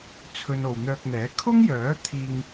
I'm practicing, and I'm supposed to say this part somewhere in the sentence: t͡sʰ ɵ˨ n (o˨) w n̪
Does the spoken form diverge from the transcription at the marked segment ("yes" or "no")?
no